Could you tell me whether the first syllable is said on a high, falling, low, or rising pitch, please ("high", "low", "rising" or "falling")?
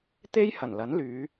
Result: high